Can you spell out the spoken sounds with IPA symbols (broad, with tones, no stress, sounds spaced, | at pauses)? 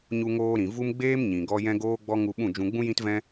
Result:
ɲ u˧ ŋ oː˧ ɾ ĩ˨ v u˦ m ɡ͡b eː˦ m ɲ ĩ˨ ɡ ɔ˧ j ɛ̃˧ ɡ oː˧ ɡ͡b ɔ˧ ŋ u˧ ɓ ũ˦˨ d͡ʒ ũ˧ ɡ͡b ũ˦ j ĩ˦ t v ɛ̃˦